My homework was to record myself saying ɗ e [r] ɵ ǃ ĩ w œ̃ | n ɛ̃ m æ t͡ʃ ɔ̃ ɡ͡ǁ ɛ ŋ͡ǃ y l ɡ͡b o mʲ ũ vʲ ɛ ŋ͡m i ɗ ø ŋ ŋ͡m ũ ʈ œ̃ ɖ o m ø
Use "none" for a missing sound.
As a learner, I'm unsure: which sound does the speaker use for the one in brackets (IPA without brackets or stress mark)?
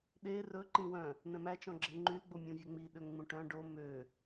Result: r